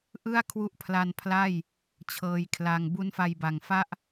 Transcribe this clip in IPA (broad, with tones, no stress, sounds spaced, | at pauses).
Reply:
ʔ ɯ˥˩ a̯ kʰ w u˦˥ ʔ pʰ l a˧ n pʰ l a˥˩ j | t͡ɕʰ ɤː˧ j kʰ l a˧ ŋ b u˦˥ n f a˧ j b a˨˩ ŋ f a˥˩ ʔ